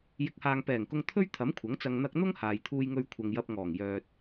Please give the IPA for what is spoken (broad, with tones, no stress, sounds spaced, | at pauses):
j ɪ˨˥ k̚ h aː˨ ŋ p ɛː˨˩ ŋ k ʊ˧ ŋ t̪ʰ ɵ˥ ɥ t̪ʰ ɐ˨˥ m kʷʰ ɐ˨˥ ŋ t͡s ɐ˧ ŋ n̪ ɐ˧ k̚ n̪ ʊ˥ ŋ h aː˨ j t̪ʰ uː˧ j ŋ ɵ˧ ɥ kʷʰ ɐ˨ ŋ j ɐ˧ p̚ ŋ ɔː˨˩ ŋ j œː˨ t̚